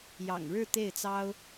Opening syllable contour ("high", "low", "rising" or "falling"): low